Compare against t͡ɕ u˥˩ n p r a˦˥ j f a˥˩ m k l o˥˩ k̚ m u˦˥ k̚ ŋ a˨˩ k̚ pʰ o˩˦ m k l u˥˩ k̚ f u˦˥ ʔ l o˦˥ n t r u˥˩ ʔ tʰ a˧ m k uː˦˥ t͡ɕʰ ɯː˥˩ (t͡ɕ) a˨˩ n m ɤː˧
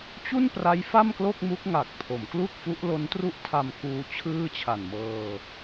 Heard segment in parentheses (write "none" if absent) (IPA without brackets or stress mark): t͡ɕʰ